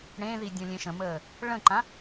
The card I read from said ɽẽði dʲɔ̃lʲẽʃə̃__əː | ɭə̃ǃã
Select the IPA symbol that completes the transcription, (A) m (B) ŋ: A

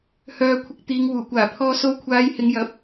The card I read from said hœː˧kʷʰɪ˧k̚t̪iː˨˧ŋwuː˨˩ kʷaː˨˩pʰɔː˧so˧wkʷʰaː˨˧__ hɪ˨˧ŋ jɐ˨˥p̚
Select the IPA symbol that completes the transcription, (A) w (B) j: B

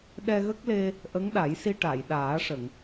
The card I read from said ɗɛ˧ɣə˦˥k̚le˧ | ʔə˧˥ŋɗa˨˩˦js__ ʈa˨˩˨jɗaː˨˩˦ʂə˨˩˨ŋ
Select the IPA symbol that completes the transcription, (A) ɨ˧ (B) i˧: B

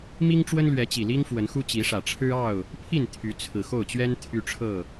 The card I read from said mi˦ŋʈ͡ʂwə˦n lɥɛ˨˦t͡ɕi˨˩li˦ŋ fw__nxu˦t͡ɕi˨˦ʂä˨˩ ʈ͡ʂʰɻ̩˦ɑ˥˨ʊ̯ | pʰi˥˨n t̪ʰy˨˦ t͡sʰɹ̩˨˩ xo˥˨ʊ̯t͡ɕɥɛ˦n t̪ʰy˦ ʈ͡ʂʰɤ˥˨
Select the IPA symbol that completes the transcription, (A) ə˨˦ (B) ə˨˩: A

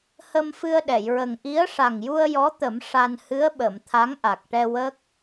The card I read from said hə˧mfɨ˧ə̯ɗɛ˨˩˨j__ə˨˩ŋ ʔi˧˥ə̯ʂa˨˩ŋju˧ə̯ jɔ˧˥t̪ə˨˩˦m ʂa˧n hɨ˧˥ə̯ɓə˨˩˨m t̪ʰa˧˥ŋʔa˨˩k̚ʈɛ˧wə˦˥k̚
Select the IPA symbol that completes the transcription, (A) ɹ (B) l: A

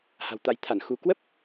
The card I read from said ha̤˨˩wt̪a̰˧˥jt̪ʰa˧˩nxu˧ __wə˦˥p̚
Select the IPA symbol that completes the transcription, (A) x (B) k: B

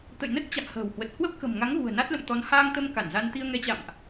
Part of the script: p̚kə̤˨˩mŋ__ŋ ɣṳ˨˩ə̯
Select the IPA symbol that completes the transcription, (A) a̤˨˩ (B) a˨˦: B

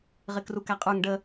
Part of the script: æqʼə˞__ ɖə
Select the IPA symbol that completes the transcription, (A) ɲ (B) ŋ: B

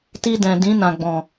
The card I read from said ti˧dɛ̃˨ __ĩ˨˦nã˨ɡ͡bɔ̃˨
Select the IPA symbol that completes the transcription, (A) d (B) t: A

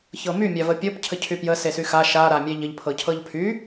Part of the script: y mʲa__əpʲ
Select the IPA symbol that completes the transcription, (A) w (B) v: B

